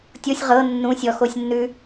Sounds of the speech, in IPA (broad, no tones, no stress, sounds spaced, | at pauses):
tʲ o sʲ ʁ ɤ nː ũ sʲ ɔ x o sʲ nː ʉ